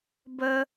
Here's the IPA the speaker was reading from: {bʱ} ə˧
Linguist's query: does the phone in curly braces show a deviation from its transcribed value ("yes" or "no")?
yes